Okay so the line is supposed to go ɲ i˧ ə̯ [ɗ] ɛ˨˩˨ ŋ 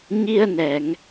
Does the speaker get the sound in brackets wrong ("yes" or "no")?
yes